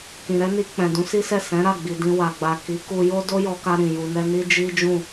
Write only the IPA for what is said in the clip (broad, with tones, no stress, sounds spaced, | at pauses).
k ĩ˨ ɾ ɛ˨˦ n i˧ k͡p ɛ̃˨ d ũ˨˦ s i˦ s ɛ˦˨ s ɛ̃˨˦ ɾ a˦˨ ɡ͡b i˨ d ĩ˧ w a˨ ɡ͡b a˨ k i˨˦ k u˧ j o˦ d o˦ j ɔ˧ k a˧ ɾ ĩ˨ j u˧ n ɛ˦ n i˦ d͡ʒ i˦ d͡ʒ ũ˦˨